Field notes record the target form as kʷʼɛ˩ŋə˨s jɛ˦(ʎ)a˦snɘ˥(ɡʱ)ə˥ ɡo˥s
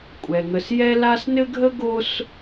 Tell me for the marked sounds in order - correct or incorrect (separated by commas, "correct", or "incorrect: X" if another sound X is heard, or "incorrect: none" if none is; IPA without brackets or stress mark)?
incorrect: l, correct